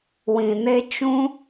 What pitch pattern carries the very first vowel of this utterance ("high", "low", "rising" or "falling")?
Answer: low